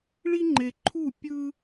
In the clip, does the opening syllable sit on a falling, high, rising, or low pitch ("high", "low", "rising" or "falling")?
high